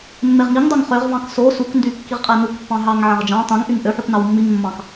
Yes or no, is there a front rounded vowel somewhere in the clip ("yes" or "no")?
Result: yes